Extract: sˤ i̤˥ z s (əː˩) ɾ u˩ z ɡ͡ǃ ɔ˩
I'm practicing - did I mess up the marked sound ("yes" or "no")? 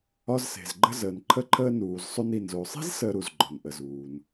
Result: yes